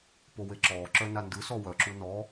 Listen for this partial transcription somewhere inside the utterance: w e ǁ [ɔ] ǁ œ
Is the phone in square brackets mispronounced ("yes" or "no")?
yes